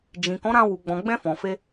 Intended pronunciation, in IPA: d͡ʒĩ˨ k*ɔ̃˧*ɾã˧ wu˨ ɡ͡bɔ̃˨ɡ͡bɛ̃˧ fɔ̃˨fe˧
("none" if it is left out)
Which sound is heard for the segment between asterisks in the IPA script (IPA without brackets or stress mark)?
ɔ̃˨˦